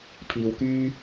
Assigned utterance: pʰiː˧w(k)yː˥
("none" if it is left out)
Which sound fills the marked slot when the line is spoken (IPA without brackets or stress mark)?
k